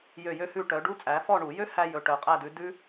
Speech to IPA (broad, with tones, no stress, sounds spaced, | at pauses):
j ø˦˨ j ø˦˥ h ʉ˦˨ ʈ œ˨˦ ɖ u˦˥ t͡sʼ æ˨˦ f ɔ˦˨ ɳ u˧˩˧ j ø˦˥ h æ˦˥ j ɵ˨˦ ʈ œ˨˦ qʼ æ˦˨ d ʉ˨˦ d ʉ˦˥